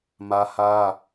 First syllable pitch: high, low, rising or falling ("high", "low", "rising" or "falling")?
high